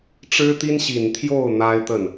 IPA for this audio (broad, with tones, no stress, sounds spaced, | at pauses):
ʈ͡ʂ ɻ̩˥ t̪ i˥ n ɕ i˨˩ n t̪ʰ j o˥˩ ʊ̯ n̪ a˥ ɪ̯ t̪ ə˥˩ n